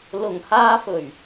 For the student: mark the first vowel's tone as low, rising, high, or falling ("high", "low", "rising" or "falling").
low